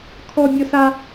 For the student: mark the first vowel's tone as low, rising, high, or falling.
high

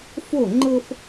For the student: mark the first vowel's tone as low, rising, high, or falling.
falling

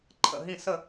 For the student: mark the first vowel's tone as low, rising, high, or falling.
falling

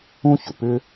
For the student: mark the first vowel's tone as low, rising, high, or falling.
high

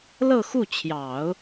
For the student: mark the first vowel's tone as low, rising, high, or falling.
falling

